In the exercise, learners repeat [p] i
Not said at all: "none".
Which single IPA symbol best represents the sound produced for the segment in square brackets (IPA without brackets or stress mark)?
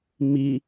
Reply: m